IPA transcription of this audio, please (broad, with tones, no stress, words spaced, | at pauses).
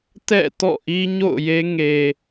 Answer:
tɛ̰˦˨tɔ̰˦˨ ʔi˦ɲo̰˦˨ʊ̯je˦ ŋe˨